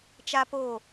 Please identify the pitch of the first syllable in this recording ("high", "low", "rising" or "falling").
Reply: high